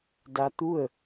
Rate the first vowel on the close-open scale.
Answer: open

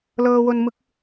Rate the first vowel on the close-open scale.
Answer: mid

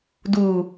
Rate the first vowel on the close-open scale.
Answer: close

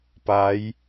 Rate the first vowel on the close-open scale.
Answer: open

